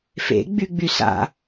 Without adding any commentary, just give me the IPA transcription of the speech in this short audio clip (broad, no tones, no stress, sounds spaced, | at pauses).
f ḛ ɡ͡b y ɡ͡b y s a̰